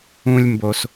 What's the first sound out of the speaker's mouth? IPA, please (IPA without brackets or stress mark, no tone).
ũ